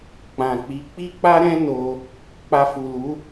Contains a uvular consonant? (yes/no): no